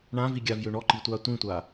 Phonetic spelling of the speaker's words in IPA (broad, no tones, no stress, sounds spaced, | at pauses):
ɳ ã v i ɡʲ a v j ø ɳ ɔ ǃ i tʷ a tʷ ĩ tʷ a